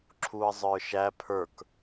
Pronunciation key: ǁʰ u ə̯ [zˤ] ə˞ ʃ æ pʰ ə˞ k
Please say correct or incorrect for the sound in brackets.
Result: correct